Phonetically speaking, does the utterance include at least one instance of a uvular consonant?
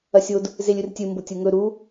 no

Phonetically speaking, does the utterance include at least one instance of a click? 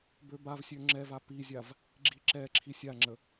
yes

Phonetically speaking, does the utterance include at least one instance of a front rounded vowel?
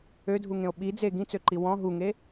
yes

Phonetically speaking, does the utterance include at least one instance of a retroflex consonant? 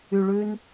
yes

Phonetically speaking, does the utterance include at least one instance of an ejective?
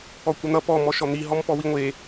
no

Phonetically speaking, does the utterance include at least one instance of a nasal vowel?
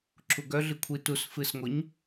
no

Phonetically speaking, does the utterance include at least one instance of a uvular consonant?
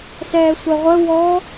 yes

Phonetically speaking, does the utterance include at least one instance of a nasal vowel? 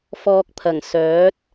no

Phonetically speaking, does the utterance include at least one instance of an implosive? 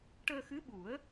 yes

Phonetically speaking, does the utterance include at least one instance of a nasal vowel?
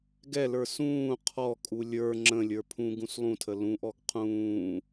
yes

